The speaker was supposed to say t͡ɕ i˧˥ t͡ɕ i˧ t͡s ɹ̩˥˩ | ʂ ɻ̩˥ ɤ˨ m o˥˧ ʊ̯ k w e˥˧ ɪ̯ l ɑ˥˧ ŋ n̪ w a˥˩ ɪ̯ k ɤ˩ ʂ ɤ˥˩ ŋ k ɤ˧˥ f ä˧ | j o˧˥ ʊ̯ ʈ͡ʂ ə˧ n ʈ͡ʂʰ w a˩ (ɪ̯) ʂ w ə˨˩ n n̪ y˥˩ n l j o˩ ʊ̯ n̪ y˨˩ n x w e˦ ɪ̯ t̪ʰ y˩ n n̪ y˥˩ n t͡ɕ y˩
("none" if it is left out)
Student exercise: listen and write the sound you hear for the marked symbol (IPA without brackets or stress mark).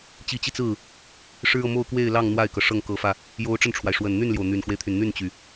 ɪ̯